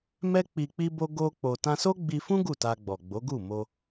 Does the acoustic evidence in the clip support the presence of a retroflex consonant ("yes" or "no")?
no